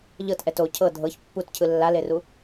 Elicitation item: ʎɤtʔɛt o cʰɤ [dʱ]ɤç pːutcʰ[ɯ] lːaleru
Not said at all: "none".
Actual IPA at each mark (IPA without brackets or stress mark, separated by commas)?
dʱ, ɯ